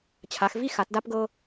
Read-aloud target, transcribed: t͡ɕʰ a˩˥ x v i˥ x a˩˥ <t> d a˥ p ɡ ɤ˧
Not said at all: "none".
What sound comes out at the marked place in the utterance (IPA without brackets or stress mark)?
t